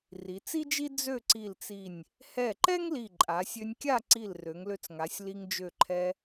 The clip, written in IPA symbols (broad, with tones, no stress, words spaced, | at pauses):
ri˩˧t͡si˥d͡ʒi˥ d͡zø˥˧ǀi˧˩lt͡si˧˩nʲ | hɛ˧˩ ǃɛ˥ŋ li˧˩ǃʼa˩˧sʲø˧nʲkʲa˥˧ ǀi˧˩l rø˩˧ŋlø˧t͡sŋa˩˧sʲ li˧ŋd͡ʒø˧˩ǃʰɛ˧